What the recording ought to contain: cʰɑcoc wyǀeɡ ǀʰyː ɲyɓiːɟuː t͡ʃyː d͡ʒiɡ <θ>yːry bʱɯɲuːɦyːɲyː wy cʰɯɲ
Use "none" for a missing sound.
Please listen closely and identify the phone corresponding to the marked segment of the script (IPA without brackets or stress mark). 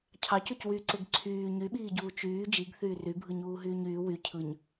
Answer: θ